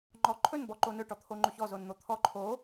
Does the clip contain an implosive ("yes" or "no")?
no